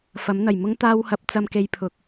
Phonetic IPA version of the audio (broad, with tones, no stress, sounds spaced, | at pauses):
f ɐ˨˥ m n̪ ɐ˨˩ j m ʊ˥ ŋ t̪ aː˧ w h ɐ˨˥ p̚ t͡s ɐ˧ m k e˧ j pʰ ʊ˨ k̚